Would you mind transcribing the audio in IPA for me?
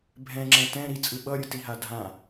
bʱ ɛ̃ ŋ͡ǁ ɛ̃ t ɛ̃ ɾ i t͡sʼ ɯ ɓ ʌ ɾʲ ɯ t i ɦ a dʱ ã

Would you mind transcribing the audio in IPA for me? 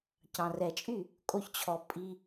c ɑ̃˨ r ɛ˨ t͡ʃʼ y˦˨ | kʼ o˧ ç t͡ɕʰ ɔ˨ pʼ i˧

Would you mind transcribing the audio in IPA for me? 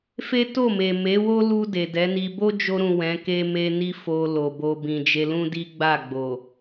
f e˦ t o˦˨ m e˨ m e˨˦ w o˦ l u˧ d e˨ d ɛ˨˦ n i˧ b o˦ d͡ʒ o˧ ɾ ũ˨ w ɛ̃˨˦ k e˦ m e˦ n i˦ f o˧ l o˨ b o˧ b ĩ˨ d͡ʒ e˧ l ũ˦ d i˦ ɡ͡b a˦˨ ɡ͡b o˨

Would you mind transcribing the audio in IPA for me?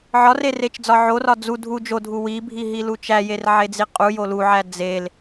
ʕ ɒ r e r e t͡ʃ d͡z ɒ ʕ o r ɒ d͡z u dʱ u d͡ʒ o dʱ u w i bʱ i ɦ i l u t͡ʃ æ j e r ʕ e d͡z i qʼ u j o l u ʕ æ d͡z e l

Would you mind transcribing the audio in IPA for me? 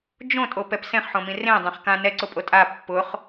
d͡ʒ õ tʼ o p ɛ p s ẽ χ ħ õ m ĩ r ẽ dˤ ẽ χ k ã n ɛ ǀ ʊ pʼ o tʼ a pː ʊ χ

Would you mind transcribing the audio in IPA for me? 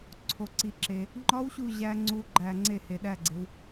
ǀʰ o˩˧ ǀ i˩˧ ǁ e˩ | ŋ͡ǃ ɒ˦˥ w ɕ u˦˨ ʑ æ˦˥ ŋ͡ǀ u˦˥ ɡ͡ǃ æ˦˨ ŋ͡ǀ e˦˨ h e˩˧ ɗ æ˦˨ ɡ͡ǀ e˩˧ w

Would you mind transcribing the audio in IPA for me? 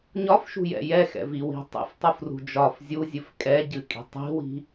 ɲ ɒ f ʃ ṳ j ɛ̰ j ɛ x ɛ̰ v i w i̤ tˤ ḭ f tˤ u f r ṳ d͡ʒ ɒ f zʲ u zʲ ɨ f kʼ ɛ ɟ ɨ kʼ i̤ tˤ i̤ w i̤

